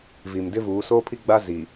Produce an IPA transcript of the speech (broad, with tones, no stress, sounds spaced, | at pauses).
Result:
v i˨ m d ɪ˦ v uː˨˦ s oː˦ pʰ i˦ ɡ͡b a˦ z i˨